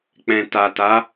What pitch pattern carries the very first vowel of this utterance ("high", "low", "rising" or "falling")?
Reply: low